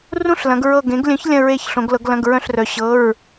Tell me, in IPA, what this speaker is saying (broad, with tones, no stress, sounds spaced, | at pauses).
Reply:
r ũ˧˥˧ ɬ l ɐ̃˩˧ ɡ ɹ ɤ˧˩ ɡ ẽ˩˥ ɡ lʲ œ̃˩˥ ç lʲ ɐ̃˧˩ ɹ e˧˩ ç ɬ õ˩˧ ɡ l ɤ˩˧ ɡ l ɐ̃˩˧˩ ɡ ɹ œ̃˧˩ ɬ r œ˩˧ ɕ ɤ˩˧˩ ɹ